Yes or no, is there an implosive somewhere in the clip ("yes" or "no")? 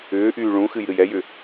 no